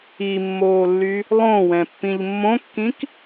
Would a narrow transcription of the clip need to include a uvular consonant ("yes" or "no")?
no